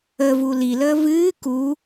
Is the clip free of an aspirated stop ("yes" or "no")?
yes